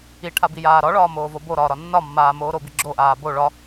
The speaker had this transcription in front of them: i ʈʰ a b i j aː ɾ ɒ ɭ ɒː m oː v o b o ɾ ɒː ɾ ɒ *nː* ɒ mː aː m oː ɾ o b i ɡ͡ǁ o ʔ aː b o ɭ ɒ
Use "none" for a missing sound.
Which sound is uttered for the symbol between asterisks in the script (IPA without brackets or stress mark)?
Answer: nː